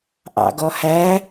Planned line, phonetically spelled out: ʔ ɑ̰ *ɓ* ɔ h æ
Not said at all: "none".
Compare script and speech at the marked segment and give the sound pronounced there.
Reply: ɡ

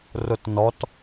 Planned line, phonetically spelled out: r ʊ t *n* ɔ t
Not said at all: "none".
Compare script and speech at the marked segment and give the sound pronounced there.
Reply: n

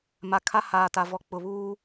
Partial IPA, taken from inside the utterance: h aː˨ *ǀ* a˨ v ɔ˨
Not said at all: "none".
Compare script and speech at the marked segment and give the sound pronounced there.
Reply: t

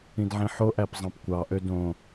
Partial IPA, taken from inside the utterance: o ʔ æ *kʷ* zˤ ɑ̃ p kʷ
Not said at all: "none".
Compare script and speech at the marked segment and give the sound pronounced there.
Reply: p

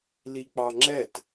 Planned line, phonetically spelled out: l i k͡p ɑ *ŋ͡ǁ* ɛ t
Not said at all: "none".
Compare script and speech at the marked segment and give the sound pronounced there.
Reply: ŋ͡ǁ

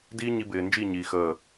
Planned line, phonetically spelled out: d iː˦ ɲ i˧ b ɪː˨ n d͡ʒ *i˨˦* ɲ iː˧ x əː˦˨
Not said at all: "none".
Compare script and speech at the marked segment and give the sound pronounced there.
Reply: i˦˨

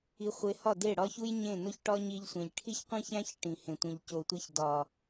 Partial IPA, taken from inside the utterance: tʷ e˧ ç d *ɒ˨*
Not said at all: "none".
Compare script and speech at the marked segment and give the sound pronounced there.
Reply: ɒ˨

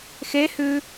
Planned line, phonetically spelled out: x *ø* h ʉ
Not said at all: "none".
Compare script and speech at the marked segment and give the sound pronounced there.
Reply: e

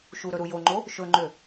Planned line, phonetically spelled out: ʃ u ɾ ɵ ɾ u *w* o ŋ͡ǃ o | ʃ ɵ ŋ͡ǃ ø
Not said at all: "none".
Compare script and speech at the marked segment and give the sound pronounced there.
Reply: j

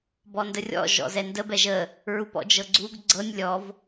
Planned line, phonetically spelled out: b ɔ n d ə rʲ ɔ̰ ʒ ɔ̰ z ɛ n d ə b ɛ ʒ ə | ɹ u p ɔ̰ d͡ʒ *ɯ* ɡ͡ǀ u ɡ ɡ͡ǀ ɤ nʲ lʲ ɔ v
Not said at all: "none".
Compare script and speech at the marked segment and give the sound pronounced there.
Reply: ɤ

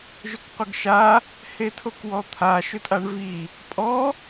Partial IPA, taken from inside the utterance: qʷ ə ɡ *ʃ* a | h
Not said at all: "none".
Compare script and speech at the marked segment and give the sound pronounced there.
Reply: ʃ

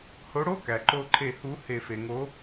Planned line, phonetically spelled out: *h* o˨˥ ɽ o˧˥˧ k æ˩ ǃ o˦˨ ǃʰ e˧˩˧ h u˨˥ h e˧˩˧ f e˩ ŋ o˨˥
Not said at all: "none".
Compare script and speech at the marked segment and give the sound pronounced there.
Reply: h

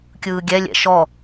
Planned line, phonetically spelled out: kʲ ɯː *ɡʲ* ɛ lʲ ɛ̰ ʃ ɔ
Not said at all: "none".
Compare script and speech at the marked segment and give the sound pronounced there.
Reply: ɡʲ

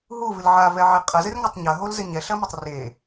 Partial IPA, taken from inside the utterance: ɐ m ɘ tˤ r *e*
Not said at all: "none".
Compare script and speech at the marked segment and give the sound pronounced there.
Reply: e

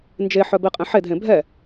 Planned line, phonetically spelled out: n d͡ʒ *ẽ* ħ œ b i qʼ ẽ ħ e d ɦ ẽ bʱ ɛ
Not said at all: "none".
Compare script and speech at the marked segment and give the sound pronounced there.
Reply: e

